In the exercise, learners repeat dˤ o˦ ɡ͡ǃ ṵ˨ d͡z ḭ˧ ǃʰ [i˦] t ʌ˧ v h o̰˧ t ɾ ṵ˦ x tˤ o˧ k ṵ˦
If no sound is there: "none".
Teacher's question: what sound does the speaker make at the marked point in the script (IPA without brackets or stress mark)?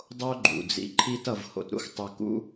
i˦